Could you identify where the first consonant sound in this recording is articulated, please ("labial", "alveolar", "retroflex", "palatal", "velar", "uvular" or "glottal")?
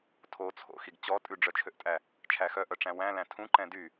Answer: alveolar